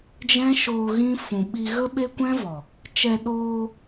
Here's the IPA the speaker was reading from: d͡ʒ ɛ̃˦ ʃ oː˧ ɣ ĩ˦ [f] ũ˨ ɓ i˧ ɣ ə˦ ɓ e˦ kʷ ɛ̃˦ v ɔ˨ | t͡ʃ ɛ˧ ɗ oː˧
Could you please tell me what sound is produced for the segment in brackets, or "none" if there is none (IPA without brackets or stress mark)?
f